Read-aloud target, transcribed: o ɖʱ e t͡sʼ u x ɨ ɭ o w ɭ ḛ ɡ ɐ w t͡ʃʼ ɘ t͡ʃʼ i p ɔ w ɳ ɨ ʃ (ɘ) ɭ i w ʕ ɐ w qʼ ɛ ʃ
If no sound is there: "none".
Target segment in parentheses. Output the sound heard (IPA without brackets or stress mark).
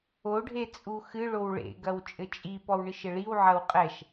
ɘ